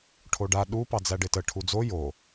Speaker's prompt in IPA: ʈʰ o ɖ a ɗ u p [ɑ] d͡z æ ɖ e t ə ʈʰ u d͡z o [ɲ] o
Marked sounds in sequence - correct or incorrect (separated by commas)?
correct, incorrect